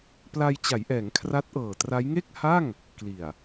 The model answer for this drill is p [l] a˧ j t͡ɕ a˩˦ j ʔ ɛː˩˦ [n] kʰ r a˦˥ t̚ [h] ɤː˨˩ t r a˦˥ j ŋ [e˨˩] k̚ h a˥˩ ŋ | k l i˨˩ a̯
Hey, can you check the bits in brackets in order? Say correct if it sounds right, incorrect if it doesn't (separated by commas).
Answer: correct, incorrect, incorrect, incorrect